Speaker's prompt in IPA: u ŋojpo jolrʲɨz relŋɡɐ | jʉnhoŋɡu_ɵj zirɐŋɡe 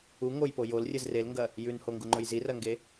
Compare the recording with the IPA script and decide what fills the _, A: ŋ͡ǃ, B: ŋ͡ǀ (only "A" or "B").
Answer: A